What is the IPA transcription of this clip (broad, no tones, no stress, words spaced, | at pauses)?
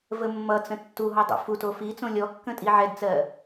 vəmːʌt͡sə̃ tːu ɦɔdˤṵfuto fi t͡sõlʲɔkːə̃ tʼiʕɛdt͡sɜ